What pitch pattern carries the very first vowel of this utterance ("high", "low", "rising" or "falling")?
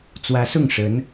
rising